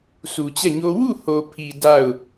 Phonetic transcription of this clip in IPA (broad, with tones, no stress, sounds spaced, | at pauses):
s u˨ t͡ɕ ɛ˦˨ ɲ o˦ w u˦˨ h o˨ pʰ i˨ d a˦˨ ʊ̯